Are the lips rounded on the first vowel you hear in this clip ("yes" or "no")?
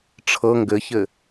no